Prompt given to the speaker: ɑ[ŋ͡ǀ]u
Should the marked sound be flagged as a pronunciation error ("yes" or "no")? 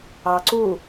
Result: yes